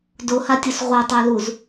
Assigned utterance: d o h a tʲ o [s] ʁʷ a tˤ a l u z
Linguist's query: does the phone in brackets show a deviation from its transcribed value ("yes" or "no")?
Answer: no